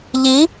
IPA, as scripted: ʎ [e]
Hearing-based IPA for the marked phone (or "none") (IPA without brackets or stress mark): i